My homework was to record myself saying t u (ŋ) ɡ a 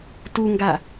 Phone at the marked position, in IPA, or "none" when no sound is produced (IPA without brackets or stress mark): ŋ